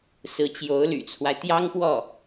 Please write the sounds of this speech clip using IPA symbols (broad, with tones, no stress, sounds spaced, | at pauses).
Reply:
s ɹ̩˧˥ t͡ɕ j o˧˥ ʊ̯ l y̰˨˩ t͡sʰ w a˦ ɪ̯ t̪ j ɑ˥ ŋ p w ɔ˥˩